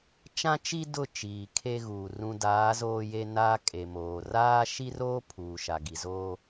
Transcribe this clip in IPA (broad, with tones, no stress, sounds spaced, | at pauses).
t͡ʃ ã˦ t͡ʃ i˦ d ʊ˦˨ t͡ʃ iː˨ kʰ e˦ ɣ uː˨ r ũ˨ d aː˨˦ z oː˦ j e˦ n a˦ kʼ e˨ m oː˨ r aː˦ ʃ i˦ r oː˦ pʰ uː˨ ʃ a˨ ɡ i˨ z oː˦